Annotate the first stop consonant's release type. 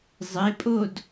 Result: ejective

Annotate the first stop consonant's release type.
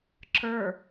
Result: click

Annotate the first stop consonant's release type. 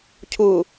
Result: aspirated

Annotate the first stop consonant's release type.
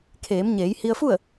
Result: aspirated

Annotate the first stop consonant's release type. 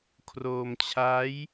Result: aspirated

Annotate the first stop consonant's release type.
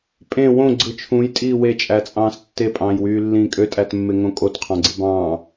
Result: ejective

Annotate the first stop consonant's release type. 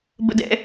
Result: plain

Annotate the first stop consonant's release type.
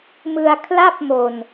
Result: aspirated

